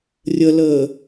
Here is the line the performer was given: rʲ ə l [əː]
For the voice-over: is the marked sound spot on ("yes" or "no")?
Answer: yes